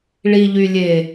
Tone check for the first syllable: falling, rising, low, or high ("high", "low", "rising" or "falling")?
low